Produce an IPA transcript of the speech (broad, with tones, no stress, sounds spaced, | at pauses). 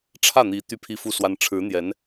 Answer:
ʈ͡ʂʰ ä˥˩ n̪ i˧˥ t̪ y˥˧ pʰ i˥˧ f u˥˩ s w a˥ n ʈ͡ʂʰ ɻ̩˧˥ n̪ j ɛ˧˥ n